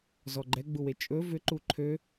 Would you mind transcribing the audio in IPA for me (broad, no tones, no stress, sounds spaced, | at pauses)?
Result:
z ɔ ɡ͡ǃ ɛ ɡ͡b u w e t͡ʃʼ ɵ v ʏ ǃ u ǃʰ ø